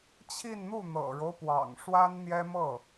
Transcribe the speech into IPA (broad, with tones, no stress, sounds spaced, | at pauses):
t͡ɕʰ i˥˧ n n̪ u˥˩ n̪ ɤ̰˨˩ ɻ o˦ ʊ̯ p w ɑ̰˨˩ ŋ ʂ w a˥ n n̪ j ɛ˥ m ɤ˥˩